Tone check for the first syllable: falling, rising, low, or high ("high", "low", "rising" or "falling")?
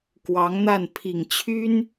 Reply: rising